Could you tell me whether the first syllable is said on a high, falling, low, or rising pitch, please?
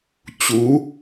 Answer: rising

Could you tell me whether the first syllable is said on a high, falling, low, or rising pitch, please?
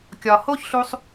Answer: low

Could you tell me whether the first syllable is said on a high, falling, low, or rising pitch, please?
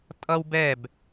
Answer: high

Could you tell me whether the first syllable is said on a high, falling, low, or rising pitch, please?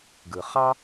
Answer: low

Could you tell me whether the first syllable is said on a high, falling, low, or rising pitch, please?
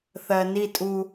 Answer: low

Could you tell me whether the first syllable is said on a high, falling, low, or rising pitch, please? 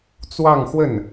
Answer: falling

